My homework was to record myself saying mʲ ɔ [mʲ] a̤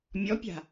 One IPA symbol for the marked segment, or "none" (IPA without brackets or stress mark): pʲ